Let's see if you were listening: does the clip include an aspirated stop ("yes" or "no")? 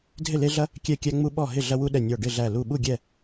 no